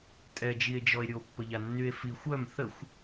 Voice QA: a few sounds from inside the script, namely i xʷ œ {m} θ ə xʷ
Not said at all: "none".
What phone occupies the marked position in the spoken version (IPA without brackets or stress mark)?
m